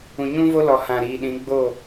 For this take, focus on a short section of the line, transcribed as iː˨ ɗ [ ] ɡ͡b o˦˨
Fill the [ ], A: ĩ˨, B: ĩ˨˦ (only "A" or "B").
B